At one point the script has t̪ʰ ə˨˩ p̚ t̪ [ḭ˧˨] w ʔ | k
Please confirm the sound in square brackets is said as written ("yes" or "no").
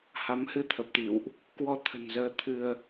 yes